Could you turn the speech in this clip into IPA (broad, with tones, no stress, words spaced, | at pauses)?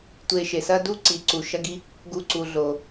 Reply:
tʷe˨ʃe˩sɐ˦du˦ ǀi˩ǀu˩ʃɐ˥ɡi˥ | ɡu˦ǀu˨ ɮo˩